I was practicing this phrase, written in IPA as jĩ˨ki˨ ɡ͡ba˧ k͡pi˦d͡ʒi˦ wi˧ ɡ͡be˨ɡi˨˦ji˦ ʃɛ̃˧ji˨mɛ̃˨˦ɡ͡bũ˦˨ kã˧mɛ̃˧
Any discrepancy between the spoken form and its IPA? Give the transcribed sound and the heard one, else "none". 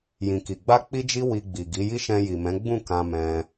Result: e˨ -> i˨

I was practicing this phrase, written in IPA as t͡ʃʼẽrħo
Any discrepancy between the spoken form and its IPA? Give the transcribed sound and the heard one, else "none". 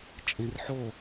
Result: none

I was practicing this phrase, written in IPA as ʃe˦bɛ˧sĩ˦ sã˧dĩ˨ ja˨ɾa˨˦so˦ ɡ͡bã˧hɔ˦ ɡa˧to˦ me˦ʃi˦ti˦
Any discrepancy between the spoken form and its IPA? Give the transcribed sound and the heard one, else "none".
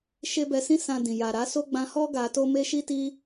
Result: none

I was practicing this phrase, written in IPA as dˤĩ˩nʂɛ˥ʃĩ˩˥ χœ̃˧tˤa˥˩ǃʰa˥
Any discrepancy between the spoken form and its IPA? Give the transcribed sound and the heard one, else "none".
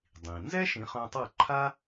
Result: ʂ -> z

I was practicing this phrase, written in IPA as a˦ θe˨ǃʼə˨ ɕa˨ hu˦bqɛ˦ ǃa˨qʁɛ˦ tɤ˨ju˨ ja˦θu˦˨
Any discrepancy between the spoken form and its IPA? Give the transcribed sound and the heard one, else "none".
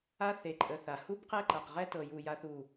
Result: ɕ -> θ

